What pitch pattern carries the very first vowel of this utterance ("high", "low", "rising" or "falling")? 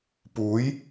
rising